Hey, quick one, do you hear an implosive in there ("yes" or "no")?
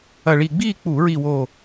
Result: no